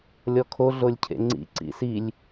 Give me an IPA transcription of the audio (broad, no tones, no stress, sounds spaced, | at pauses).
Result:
lʲ ɔ kʰ o ɮ o lʲ cʰ ḛ ŋ͡ǀ ḭ ǀ ḭ s i lʲ